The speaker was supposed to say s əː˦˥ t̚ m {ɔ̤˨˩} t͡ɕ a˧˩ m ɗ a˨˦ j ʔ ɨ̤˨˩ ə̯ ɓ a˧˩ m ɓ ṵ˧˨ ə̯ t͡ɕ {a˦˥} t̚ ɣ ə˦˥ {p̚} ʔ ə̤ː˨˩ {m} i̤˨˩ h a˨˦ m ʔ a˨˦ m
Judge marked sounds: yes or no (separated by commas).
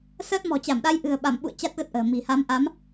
yes, yes, no, yes